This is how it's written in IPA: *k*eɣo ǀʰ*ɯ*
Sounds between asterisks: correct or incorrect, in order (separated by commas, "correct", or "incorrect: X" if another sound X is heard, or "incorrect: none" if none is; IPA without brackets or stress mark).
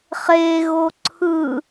incorrect: χ, correct